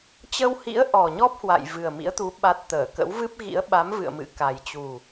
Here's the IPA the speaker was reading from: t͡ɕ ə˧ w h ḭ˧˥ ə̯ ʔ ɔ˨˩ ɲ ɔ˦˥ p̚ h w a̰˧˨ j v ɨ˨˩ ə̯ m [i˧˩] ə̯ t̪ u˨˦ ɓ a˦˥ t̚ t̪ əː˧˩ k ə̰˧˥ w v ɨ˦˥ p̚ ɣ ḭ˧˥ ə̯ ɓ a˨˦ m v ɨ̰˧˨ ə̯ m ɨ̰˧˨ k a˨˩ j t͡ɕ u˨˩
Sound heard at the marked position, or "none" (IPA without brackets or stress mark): ḭ˧˥